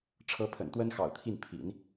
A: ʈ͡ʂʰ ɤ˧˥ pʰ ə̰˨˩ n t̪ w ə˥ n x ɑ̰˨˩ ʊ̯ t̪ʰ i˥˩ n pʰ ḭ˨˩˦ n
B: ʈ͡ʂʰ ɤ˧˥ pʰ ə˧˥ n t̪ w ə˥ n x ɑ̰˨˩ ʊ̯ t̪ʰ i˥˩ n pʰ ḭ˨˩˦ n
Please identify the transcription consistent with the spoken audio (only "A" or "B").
A